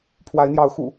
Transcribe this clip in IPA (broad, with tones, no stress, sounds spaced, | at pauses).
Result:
pʰ w a˨˦ ɪ̯ n̪ j ɑ˨˦ ʊ̯ x ṵ˨˩